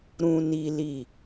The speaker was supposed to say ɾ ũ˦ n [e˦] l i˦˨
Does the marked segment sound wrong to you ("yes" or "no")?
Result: yes